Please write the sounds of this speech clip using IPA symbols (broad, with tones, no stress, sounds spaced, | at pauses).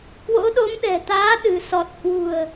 k w o̰˧˥ ɗ o˨˦ m ɗ ɛ̤˨˩ t̪ aː˨˦ ɗ ɨ̤˨˩ s ɔ˨˩ t̚ h w ṳ˨˩ ə̯